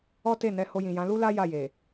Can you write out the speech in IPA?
ɔ˦ t e˦˨ n ɛ˧ h o˧ j ĩ˨ j ã˨˦ l u˦ l a˦ j a˦˨ j e˨

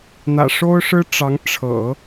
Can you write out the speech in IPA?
n̪ ä̰˨˩ ʂ o˥ ʊ̯ ʂ ɻ̩˥ ʈ͡ʂ ɑ˧˥ ŋ ʈ͡ʂʰ ɤ̰˨˩˦

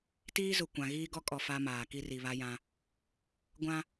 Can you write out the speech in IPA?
t iː˦ z ʊ˨ kʷ ã˨ ɣ iː˦ ɡ ɔ˦ kʼ ɔ˨ f a˦ m aː˨ k i˦ r i˨ β a˦ j ã˦ | ɡʷ ã˦

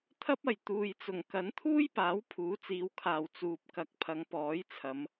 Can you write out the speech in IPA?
t̪ʰ ɐ˥ p̚ ɐ˨ j t̪ uː˨ j t͡s ʊ˨˩ ŋ k ɐ˨˥ n t̪ʰ uː˥ j p aː˨˥ w pʰ uː˨˥ t͡s iː˨˧ w kʰ aː˨ w t͡s uː˨ p̚ k ɐ˨ k̚ pʰ ɐ˨˧ ŋ p ɔː˨˥ j t͡sʰ ɐ˨˧ m

